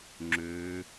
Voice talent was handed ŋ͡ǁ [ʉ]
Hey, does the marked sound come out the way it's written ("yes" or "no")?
no